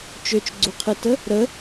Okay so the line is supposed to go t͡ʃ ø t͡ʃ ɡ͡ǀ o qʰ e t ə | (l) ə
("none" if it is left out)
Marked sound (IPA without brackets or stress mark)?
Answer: ɾ